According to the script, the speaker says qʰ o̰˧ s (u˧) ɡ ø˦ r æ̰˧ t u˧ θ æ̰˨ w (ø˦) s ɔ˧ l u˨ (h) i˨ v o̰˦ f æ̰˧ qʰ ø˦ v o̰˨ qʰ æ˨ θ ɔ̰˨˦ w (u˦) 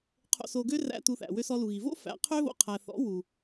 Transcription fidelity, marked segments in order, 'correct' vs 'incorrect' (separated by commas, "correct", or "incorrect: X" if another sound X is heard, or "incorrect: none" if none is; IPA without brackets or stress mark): incorrect: o˧, incorrect: ø˧, incorrect: ɣ, incorrect: u˨